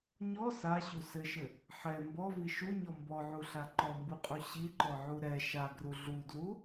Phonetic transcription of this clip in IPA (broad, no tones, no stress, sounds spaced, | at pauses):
ɲ ɔ s a ɕ u s ɘ ʃ ɘ | ħ ɛ m b ɔ v i ʃ u ɲ ɔ m b ɔ ʕ u ɬ a ǃ ɔ m b u qʼ u ɕ i ǃ ɔ ʕ u ɾ ɛ ʃ a ɡ r u ɮ u d l u